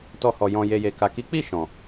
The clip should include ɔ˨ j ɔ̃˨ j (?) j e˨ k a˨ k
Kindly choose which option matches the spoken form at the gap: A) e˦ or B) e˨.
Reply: B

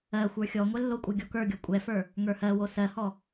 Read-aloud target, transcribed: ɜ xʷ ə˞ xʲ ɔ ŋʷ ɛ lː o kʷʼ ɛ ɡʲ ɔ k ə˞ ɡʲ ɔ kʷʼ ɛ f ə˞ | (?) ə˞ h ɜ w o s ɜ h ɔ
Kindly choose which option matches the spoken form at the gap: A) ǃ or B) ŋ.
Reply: B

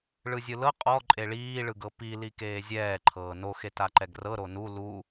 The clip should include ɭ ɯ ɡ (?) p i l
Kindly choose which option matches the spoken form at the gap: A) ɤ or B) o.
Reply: A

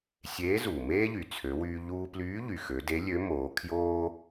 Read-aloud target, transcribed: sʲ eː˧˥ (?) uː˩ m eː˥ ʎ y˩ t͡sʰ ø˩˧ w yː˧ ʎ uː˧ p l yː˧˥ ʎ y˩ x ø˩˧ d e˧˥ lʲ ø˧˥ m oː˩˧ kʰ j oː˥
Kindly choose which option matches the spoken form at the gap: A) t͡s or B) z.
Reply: B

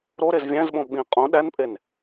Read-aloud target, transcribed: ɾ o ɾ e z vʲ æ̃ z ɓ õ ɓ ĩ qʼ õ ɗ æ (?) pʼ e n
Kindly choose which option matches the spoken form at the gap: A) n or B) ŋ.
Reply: A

